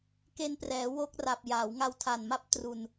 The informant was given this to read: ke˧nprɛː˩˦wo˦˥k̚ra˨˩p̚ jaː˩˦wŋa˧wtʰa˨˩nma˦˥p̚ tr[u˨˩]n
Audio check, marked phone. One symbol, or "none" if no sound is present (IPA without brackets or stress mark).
u˨˩